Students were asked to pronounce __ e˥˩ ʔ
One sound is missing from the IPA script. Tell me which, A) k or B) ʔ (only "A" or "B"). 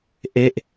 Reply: B